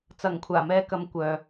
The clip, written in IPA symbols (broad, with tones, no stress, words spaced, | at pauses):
t͡sɐ˨˩ŋkʷʰaː˨˩mɛː˧kɐ˨˧m kʷœː˨